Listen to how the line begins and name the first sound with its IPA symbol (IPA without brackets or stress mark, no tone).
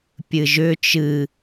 pʲ